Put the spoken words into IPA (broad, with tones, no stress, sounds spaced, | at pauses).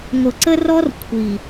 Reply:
ŋʷ ə˨ ǀ ə˦ r ɔ˦ r kʷʰ i˨